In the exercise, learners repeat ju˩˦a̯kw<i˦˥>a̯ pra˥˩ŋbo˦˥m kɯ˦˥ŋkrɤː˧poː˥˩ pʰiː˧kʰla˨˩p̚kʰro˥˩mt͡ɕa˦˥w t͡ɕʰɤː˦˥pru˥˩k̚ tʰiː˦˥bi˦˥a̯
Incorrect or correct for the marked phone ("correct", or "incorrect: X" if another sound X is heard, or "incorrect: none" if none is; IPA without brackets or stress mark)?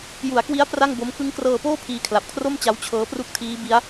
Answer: correct